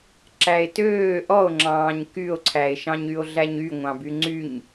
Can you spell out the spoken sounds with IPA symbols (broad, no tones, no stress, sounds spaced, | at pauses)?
ǁ æ e̯ t øː ʔ ɔ o̯ ŋ͡ǁ ɑ̃ː ɲ k y o̯ ǀʰ æ e̯ ʃ ɑ̃ ɲ y o̯ ɮ æ ɲ y ŋʷ ɑ̃ b y ŋ͡ǀ y ɲ